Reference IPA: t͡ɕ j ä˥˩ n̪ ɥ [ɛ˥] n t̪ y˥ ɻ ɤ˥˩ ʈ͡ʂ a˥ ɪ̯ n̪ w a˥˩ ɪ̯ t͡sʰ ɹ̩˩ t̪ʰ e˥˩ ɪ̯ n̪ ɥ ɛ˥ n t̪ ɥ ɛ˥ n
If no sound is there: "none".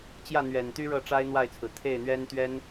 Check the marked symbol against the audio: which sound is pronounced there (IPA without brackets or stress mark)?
ɛ˨˩